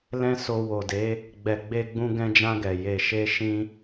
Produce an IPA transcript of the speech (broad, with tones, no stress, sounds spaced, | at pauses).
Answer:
l ɛ̃˦ s o˧ w o˨ d e˨˦ | ɡ͡b ɛ˨ ɡ͡b e˧ ɡ͡b ũ˧ ɡ ɛ̃˧ d͡ʒ ã˧ ɡ ɛ˨ j e˨ ʃ e˧ ʃ ĩ˦